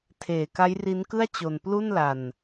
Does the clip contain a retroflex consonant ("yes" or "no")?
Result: no